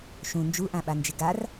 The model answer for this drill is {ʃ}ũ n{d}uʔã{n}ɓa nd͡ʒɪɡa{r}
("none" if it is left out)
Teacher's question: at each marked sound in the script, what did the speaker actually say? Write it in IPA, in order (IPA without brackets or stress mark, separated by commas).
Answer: ʃ, d͡ʒ, none, r